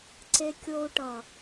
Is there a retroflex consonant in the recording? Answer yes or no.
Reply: yes